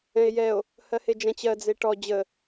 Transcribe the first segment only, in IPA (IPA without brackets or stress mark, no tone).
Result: ɛ̃